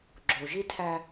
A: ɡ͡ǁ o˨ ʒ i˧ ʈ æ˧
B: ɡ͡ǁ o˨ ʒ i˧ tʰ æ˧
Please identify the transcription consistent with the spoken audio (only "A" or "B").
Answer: B